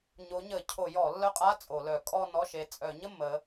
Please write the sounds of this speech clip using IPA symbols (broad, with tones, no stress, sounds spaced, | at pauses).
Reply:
ɲ o˨˦ ɲ ə˧˩˧ cʰ o˧˩˧ j ɔ˧˩˧ lː œ˦˥ qʼ a˧˥˧ t͡sʼ o˧˩˧ l œ˧˩˧ kʼ ɔ˥˧ n ɔ˧˥˧ ʃ e˨˦ t͡sʼ œ˧˩˧ ɲ ə˥˧ m ə˨˦